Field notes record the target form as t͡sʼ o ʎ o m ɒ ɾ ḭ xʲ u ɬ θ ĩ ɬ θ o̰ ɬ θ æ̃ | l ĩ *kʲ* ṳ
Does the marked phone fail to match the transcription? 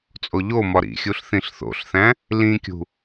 no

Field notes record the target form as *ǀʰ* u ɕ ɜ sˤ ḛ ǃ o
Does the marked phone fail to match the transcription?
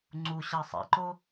yes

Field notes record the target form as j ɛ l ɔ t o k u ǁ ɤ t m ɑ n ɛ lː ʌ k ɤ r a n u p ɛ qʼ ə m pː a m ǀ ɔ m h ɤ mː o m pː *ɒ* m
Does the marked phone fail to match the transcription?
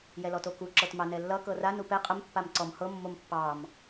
yes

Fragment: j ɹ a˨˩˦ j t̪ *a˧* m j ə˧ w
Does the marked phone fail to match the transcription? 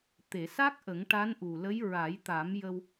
yes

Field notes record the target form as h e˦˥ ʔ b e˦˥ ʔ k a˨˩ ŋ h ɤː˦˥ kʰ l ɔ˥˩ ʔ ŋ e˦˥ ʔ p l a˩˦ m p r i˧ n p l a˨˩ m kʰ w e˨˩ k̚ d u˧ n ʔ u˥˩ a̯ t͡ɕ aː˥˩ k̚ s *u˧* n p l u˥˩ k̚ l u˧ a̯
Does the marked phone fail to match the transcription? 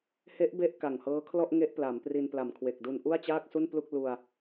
yes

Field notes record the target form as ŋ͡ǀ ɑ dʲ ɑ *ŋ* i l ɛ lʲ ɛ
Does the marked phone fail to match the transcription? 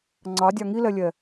no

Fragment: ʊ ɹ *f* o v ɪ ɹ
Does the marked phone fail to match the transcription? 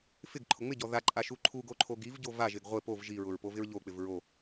yes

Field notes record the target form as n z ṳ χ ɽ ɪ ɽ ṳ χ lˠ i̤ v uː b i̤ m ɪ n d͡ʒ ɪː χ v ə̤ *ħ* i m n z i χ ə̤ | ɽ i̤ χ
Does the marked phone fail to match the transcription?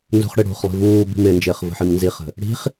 no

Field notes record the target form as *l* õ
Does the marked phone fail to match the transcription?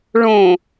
yes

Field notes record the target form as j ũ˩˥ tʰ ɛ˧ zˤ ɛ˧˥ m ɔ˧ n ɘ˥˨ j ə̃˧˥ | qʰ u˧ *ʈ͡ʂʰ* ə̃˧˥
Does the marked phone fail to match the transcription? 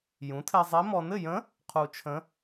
yes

